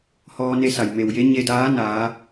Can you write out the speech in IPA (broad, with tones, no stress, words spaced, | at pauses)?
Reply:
hɔː˧ ne˧sa˩j me˩wje˧˥ɲe˧daː˧˥ naː˩˧